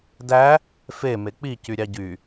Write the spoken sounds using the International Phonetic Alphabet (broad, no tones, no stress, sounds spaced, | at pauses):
d æ | f e m e k͡p i c y ɾʲ ɑ ɟ y